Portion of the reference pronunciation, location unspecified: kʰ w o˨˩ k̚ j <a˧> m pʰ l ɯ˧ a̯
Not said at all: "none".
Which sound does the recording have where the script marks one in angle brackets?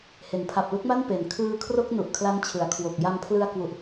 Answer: a˧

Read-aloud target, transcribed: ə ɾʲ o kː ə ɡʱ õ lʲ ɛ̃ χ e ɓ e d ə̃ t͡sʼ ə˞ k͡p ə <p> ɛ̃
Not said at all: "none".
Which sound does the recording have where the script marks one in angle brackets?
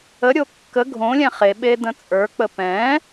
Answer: p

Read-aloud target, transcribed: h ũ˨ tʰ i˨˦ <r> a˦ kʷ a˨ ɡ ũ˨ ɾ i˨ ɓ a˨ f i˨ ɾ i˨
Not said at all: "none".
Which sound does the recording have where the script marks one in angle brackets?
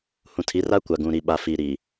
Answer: r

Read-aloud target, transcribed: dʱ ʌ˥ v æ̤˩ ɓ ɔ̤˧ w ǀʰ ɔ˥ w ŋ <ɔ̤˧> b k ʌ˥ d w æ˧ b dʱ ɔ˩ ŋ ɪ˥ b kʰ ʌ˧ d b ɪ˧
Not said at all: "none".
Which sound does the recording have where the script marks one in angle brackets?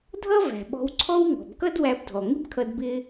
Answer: ɔ̤˩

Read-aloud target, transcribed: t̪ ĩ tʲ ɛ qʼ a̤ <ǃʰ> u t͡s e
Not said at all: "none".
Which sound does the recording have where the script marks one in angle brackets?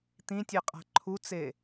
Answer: ǃʰ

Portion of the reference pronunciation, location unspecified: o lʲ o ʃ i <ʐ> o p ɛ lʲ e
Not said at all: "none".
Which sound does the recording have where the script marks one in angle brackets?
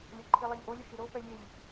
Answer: ɾ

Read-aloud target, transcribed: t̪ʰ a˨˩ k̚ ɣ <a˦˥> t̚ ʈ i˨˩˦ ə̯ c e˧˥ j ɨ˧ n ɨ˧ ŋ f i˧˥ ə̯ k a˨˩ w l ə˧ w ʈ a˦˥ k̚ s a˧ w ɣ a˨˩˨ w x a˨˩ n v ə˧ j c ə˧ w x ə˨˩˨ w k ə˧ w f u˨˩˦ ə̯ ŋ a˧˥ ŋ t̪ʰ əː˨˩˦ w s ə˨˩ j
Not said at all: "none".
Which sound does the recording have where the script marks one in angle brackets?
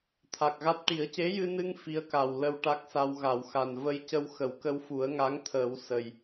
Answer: a˦˥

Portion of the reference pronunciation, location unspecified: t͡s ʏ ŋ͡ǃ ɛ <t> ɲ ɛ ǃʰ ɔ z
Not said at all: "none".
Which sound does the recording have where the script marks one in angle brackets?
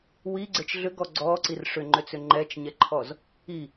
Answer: t͡ʃ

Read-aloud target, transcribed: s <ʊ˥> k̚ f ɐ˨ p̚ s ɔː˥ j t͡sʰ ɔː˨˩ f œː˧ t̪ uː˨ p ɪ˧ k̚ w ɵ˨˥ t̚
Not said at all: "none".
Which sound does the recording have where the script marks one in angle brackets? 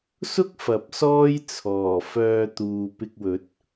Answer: ʊ˥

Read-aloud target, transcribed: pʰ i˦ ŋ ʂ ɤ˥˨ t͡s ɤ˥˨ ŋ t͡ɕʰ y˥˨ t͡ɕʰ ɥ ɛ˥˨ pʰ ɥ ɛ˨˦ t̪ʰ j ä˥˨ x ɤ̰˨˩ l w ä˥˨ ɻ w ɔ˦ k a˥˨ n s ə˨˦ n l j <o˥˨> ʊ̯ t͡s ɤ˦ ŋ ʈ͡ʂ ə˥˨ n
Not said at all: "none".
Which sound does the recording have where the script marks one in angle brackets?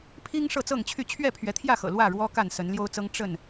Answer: o˦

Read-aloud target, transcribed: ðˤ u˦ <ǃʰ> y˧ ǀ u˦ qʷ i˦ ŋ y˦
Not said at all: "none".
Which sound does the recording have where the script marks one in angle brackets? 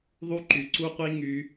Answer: ǃ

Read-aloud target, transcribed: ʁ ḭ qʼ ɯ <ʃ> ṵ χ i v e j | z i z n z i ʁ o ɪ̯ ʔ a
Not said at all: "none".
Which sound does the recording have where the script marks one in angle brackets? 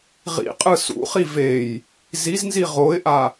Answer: s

